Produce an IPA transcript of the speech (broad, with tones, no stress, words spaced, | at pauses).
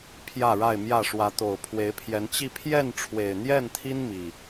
pʰjä˥˨ɻa˥˨ɪ̯mjä˥˨ ʂwä˨˦t̪o˨˩ʊ̯ pʰwe˨˦ɪ̯pʰjɛ˨˦n t͡ɕi˥˨ pʰjɛ˥˨nʈ͡ʂʰwe˨˩ɪ̯n̪jɛ˥˨nt̪ʰi˦n mi˨˩